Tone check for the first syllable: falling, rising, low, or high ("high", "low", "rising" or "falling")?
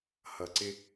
low